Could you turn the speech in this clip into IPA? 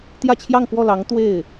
t̪ j ä˥˧ t͡ɕʰ j ɑ˥˧ ŋ k w ɔ˥˩ l ɑ˧˥ ŋ t̪ w e˥˩ ɪ̯

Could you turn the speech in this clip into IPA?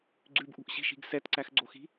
ɡ͡ǀ ʉ b ʔ ṳ ʔ ɕ i̤ ʃ i̤ ɡ s ɛ t ǀ æ x ɡ͡ǀ o x i̤

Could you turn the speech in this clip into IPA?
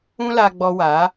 ũ˦ l a˧ ɡ͡b ɔ˧ w a˨˦

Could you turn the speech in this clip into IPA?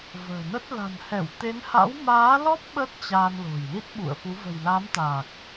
v ə̤ː˨˩ n ə˦˥ t̚ l a̤˨˩ n h ɛ˧˩ w t̪ e˨˦ n h a̰˧˥ w m aː˨˦ l ɔ˦˥ p̚ ɓ ə˦˥ t̚ t͡ɕ a˧ n l o̤˨˩ j l i˦˥ t̚ ɓ ṵ˧˨ ə̯ f u˨˦ v ə̤˨˩ j l a˨˦ m t̪ aː˨˩ k̚

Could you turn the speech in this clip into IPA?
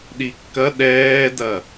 ɗ i kː ɐ ɗ ɛː d ɐ

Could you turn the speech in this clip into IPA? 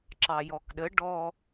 ǁ ɑ j ɔ k ɗ ə ɖ ɔ

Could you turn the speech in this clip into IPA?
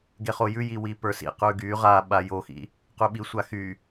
ɡ e χ o j ʉ j i w i p ə˞ s ḭ q ʉ ɡ y ʁ a ɓ a j o x ḭ | q ʉ ɓ i sʷ a x y

